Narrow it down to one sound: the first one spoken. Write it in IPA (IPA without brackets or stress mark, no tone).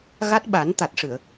ɣ